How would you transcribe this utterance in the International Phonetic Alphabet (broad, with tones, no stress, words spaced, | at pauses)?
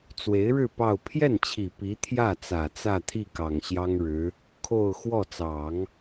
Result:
t͡swe˧˥ɪ̯ɻɻ̩˥˧ pɑ˥˧ʊ̯ pʰjɛ˥˩nt͡ɕʰi˨˩ pi˧˥t̪ʰjä˥˩t͡sä˨˩ t͡sä˥˧t̪ʰi˥˩ kɑ˨˩ŋ ɕjɑ˥ŋɻɻ̩˧˥ | kʰo˥˧ʊ̯ xwɔ˥˩t͡sɑ˨˩˦ŋ